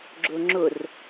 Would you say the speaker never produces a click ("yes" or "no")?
no